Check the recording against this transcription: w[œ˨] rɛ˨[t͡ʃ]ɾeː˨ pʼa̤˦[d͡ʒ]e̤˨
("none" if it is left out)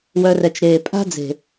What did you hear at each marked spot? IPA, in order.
œ˨, t͡ʃ, d͡z

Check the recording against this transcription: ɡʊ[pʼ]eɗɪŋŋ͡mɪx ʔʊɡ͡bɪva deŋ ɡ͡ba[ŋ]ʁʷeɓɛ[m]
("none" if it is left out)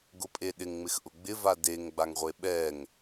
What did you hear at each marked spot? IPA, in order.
pʼ, ŋ, ŋ

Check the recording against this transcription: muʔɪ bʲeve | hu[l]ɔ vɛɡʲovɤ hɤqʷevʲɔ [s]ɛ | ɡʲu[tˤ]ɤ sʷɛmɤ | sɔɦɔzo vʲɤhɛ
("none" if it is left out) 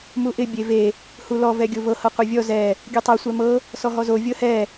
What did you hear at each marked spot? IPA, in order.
l, z, tˤ

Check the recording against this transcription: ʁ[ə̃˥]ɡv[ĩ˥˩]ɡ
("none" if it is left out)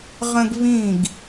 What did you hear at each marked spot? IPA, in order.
ə̃˥, ĩ˥˩

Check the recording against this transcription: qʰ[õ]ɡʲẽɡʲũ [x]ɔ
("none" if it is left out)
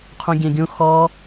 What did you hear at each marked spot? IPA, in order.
ũ, x

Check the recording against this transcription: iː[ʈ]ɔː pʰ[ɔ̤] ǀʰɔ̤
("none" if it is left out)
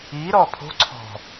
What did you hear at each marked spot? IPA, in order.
ɾ, o̤

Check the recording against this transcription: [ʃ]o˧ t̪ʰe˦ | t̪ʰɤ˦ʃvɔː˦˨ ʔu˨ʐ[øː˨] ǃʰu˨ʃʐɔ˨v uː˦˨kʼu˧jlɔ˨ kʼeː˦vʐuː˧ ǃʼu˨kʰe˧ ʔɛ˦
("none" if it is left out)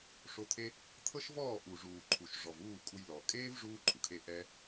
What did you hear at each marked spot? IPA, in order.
ʂ, uː˨

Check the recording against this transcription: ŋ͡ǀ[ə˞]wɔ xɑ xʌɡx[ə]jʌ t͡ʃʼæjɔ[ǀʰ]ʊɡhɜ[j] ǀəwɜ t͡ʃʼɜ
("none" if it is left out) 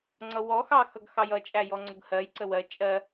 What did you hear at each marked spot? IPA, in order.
ʌ, ɑ, ŋ͡ǀ, j

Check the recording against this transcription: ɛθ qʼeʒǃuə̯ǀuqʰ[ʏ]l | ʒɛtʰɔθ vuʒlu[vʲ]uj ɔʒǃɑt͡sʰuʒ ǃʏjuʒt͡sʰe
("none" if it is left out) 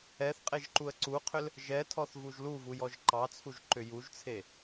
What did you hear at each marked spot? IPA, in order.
ʏ, v

